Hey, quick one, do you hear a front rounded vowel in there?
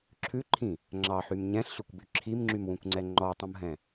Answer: yes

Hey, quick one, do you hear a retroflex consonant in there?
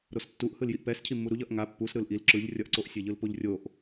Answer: no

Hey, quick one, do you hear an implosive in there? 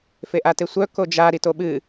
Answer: yes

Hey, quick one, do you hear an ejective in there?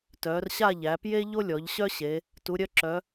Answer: no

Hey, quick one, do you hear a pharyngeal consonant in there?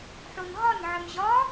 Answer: yes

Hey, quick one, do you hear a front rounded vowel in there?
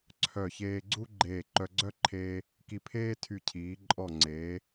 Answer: yes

